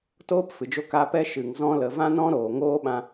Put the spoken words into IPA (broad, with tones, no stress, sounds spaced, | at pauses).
t oː˦ p f ɨ˨ d͡ʒ o˧ k a˧ p ɛ˦ ʃ ɨ˨ ŋ z ɔ̃˧ l ə˨ v ã˦ n ɔ̃˦ ɾ oː˨ ŋ oː˦ ɓ ã˦